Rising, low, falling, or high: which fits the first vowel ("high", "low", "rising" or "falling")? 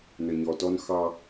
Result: low